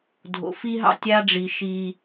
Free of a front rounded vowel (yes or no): yes